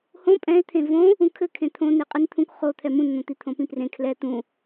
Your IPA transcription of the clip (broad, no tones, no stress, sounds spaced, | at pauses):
h õ pʼ ɛ̃ ɪ̯ t̪ʰ ẽ v õ | ũ kʰ ɘ kʰ ẽ t̪ʰ õ n e qʼ i n t̪ʰ ũ k χ o t̪ʰ ɛ m ũ n n̪ õ t̪ i t̪ʰ õ p ĩ p r ẽ kʰ l ɛ t̪ ũ